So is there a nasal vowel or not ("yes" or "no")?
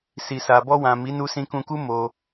yes